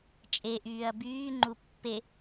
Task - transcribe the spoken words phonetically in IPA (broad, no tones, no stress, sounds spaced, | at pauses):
t͡ʃʼ e ʔ yː ɐ̯ b yː ŋ͡ǃ u pː e